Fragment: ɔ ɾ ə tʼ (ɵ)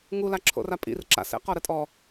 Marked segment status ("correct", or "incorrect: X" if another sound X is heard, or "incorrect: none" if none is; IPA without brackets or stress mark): incorrect: ɔ